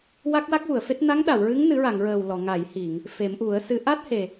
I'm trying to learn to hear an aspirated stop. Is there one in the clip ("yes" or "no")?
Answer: no